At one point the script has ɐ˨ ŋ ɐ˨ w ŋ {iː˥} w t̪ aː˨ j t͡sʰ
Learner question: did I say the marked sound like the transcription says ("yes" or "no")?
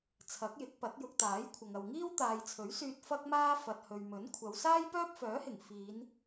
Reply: yes